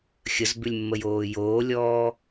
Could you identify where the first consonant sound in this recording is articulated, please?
velar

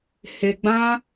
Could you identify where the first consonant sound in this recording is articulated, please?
glottal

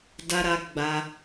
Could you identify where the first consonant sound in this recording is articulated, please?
alveolar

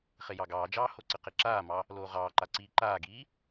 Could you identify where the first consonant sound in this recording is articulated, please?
uvular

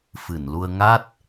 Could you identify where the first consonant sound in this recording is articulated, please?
labial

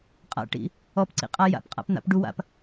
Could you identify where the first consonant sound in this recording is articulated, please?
uvular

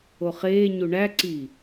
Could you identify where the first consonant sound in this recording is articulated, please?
uvular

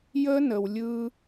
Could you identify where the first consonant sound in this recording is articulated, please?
palatal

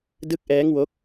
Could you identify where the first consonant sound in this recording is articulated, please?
alveolar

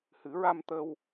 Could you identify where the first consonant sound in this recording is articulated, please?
glottal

